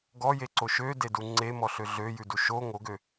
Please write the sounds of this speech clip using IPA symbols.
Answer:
ɡ ɔ j e ǀ o ʃ ø d e d u ŋ͡ǀ e m ɔ ɬ ø ɮ ø j ʉ d u ʃ o ŋ o ɡ ø

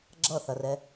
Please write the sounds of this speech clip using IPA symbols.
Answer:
ɡ͡ǁ ʌ θ ɐ r ɛ

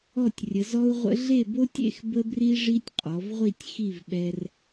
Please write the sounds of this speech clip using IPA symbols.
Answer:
ɔ˥˧ tʲ rʲ ə˩˧ z ɔ˥ u̯ ʁʷ ə̰˥ ɮ e˥˧ b o˥ tʲ ḛ˥˧ x b ə˥ b r i˥ ʐ i˥ tʲ qʼ ɔ˩˧ v ʁʷ i˥˧ tʲ x i˥˧ v ɓ ɛ˧ r

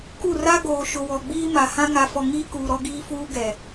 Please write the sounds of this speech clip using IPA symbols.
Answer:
k u˦˨ r a˦ ɡ oː˨ ʃ ʊ˨ w ɔ˨ ɡ͡b iː˦ m a˨ h ã˦ ŋ a˨ f ɔ˨ ŋ iː˦ k uː˨ ɾ ɔ˦ ɡ iː˦ f uː˦ ɡ ɛ˨

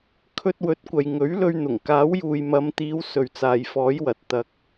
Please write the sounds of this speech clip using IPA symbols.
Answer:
kʰ ɵ˧ t̚ w ɵ˨˥ t̚ kʷ ɐ˨ j ŋ ɵ˨˥ ɥ l ɵ˧ ɥ n̪ ʊ˨˩ ŋ k aː˨˥ w j uː˨ j m ɐ˨˧ m t̪ iː˨˧ w s ɵ˨ ɥ t͡s aː˨ j f ɔː˨˥ j w ɐ˨ t̚ t̪ ɐ˨ k̚

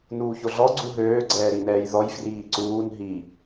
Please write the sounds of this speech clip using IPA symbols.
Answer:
n uː ç o ɮ ɔ ɡ͡ǀ u ɦ øː ɡ͡ǀ ɛː ɾ i n ɛː j ð ɔ j f r iː ǀ uː n ɦ i

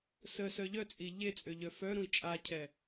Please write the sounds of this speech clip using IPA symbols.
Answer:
s ə s œ ʎ œ t͡sʼ i ʎ e t͡sʼ ø ʎ œ f œ ɾ ũ i̯ t͡ʃʼ a cʰ ɛ

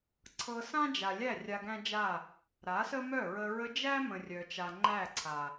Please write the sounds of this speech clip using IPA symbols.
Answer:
ǀʰ ɤ˧ s ã˦ d͡ʒ a˨ lʲ æ˦˨ rʲ a˧ ɡ æ̃˦ d͡ʒ a˦˨ | ɾ a˨˦ s ə˦ m œ˦˨ ɹ ə˧ ɹ ə˧ d͡ʒ æ˦ m ə̃˨ rʲ œ˨ t͡ʃ a˨ ŋ͡ǃ æ˦˨ ǀʰ a˨

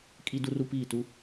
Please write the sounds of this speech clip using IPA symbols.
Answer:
kʼ i˦ d u˦ r u˦ p iː˦˨ t u˦

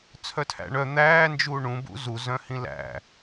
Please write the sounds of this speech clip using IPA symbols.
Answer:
t͡sʰ œ tʰ æ̰ ɳ œ n̪ æː n d͡ʒ uː ɳ ũ b ṵ z u z œ̃ h ĩ l æ̰

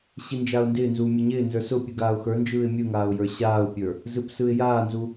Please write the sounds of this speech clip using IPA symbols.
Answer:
ɕ i n d͡ʒ a ʊ̯ n d ɪː n z uː mʲ a ɲ ɪː n z ə˞ s ʊ pʲ ɯ ɡ aː ʊ̯ x ə˞ n d͡ʒ ɯː ɪ̯ mʲ ɯ ŋ aː ʊ̯ j ə˞ ɕ aː ʊ̯ pʲ ə˞ | z ɯ p s ɯ ɪ̯ j aː n z u

